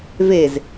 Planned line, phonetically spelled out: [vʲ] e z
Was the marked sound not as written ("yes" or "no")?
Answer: yes